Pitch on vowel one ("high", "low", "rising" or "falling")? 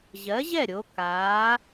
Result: rising